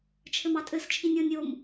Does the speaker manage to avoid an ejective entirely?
no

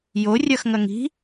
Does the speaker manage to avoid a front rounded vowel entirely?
yes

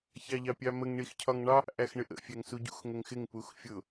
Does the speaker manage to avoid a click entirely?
yes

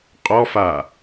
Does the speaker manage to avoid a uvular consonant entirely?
no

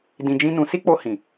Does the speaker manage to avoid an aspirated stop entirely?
yes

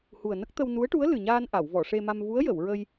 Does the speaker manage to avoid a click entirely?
yes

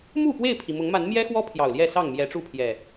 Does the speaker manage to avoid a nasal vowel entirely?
yes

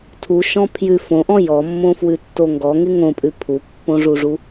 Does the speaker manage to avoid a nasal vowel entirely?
no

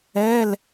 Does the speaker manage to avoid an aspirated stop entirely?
yes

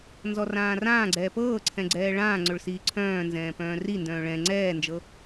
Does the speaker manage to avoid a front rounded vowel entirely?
no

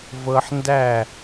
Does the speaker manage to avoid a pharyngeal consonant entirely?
no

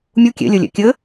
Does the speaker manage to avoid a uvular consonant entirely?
yes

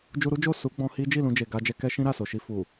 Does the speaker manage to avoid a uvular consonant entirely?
yes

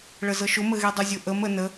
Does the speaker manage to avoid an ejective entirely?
yes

